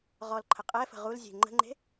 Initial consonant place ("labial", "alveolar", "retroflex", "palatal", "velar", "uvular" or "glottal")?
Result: uvular